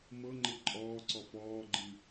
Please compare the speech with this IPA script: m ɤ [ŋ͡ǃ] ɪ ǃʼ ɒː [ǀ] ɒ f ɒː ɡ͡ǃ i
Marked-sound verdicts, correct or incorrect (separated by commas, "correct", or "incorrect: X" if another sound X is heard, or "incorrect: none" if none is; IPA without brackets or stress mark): correct, correct